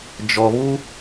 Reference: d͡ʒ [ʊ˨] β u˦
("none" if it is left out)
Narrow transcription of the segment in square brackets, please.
ɔ˨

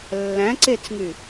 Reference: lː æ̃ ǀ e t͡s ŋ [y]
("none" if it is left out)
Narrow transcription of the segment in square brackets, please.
y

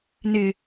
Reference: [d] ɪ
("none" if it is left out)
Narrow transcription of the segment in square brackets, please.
n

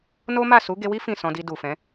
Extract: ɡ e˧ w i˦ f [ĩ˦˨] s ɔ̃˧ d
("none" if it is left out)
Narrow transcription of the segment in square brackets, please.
ĩ˦˨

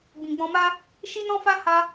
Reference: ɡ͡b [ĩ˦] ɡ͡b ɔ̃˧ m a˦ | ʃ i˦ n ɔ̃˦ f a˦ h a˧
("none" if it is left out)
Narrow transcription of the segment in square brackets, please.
ĩ˨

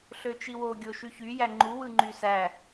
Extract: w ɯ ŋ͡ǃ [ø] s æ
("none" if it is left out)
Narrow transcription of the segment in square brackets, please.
y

